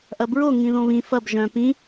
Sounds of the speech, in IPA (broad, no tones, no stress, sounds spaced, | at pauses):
ʔ ɐ b ɹ o ŋ ĩ ð õ β ĩ f ɐ b ʒ œ̃ p ĩ